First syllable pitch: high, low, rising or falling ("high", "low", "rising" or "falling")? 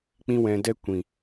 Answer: high